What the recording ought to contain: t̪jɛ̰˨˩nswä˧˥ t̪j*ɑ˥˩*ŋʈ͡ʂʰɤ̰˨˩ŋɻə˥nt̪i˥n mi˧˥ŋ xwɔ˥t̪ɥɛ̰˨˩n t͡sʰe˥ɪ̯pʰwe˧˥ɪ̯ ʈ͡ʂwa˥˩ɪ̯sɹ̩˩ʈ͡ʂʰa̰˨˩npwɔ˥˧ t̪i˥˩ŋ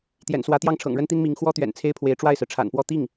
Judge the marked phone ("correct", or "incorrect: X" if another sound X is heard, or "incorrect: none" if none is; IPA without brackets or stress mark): correct